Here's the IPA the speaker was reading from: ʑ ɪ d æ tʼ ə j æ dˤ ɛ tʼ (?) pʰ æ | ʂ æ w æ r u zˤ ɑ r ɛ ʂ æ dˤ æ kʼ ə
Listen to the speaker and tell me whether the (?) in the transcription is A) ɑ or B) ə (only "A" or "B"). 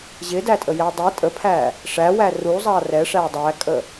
B